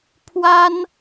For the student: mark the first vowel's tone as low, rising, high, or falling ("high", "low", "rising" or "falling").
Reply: high